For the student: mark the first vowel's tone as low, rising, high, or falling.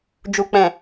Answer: low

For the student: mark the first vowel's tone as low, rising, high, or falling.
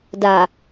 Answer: low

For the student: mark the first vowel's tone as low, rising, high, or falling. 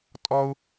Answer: high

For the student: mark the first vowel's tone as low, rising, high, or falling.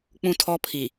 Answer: high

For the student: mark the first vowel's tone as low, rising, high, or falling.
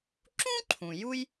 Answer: high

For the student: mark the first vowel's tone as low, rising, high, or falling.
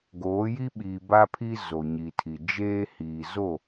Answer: rising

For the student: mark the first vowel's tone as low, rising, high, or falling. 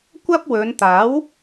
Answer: high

